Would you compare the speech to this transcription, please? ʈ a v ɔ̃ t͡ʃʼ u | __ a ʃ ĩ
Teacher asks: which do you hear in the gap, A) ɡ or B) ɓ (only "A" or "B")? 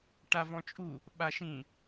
B